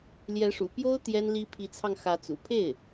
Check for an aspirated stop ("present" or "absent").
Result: present